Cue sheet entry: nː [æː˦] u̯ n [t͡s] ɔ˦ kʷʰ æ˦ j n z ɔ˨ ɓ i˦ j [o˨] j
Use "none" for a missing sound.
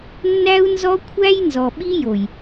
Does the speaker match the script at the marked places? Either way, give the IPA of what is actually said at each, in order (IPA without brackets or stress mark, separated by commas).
æ˦, z, o˨